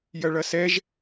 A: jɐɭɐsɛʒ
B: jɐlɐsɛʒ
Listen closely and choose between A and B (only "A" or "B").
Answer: A